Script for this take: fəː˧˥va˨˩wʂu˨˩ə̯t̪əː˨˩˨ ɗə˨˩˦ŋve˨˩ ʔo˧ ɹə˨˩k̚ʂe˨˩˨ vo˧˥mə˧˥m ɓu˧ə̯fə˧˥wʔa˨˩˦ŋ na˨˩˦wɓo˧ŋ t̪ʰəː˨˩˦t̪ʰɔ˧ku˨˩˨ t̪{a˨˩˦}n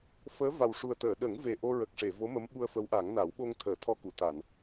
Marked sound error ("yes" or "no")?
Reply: yes